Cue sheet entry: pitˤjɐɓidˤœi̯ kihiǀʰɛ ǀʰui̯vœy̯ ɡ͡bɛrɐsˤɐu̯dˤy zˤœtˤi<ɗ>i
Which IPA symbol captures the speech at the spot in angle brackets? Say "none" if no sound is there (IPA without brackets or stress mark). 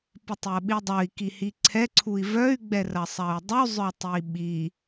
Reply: ɓ